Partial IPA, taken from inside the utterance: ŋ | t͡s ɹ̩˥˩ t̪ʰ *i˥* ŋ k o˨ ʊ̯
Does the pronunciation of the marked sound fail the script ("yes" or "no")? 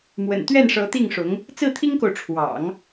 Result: no